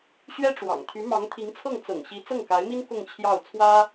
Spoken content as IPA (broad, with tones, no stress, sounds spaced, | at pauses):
ɕ ɥ ɛ˥ ʈ͡ʂ w ɑ̰˨˩ ŋ t̪ʰ y˧˥ m ɑ˧˥ ŋ t̪ʰ i˧˥ ŋ t͡sʰ ɤ˥˩ ŋ t͡s ɤ̰˨˩ ŋ ɕ i˧˥ t͡s ɤ˥˩ ŋ k a˧˥ ɪ̯ m i˥ n k ʊ˥˧ ŋ t͡ɕʰ j ɑ˥˩ ʊ̯ t͡sʰ w ä˥